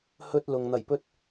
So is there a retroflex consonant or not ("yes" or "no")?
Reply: no